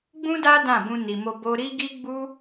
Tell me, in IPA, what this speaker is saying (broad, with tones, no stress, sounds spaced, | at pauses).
ɡ͡b ũ˦ d a˦ d ã˦˨ b ũ˧ n i˨ m o˧ b o˧ ɾ i˦ ɡ i˦ ɡ͡b u˦